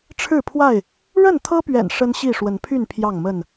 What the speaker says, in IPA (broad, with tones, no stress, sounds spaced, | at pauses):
ʈ͡ʂʰ ɻ̩˥˨ pʰ w a˥˨ ɪ̯ | ɻ ə˥˨ n t̪ʰ ɤ˦ p ɥ ɛ̰˨˩ n ʂ ə˦ n ɕ i˥˨ ʂ w ə˨˦ n pʰ y˥˨ n pʰ j ɑ˥˨ ŋ m ə˥˨ n